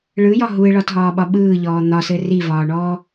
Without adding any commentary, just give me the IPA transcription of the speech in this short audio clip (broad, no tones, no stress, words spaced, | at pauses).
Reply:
ɭɯjɒ ɦuɪ̯ɭɒtɦɒːɓɒ ɓɯːʎɔː n̪ɒsɘ rivɒːɳɔː